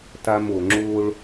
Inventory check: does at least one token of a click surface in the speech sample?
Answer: yes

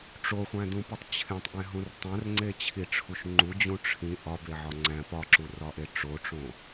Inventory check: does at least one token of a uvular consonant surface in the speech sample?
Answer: yes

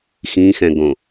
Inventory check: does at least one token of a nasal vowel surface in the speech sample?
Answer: yes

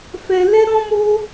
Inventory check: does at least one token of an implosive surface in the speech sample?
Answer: no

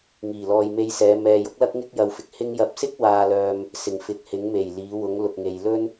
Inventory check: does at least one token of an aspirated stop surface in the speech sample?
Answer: no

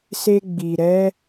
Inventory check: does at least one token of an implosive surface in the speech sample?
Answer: no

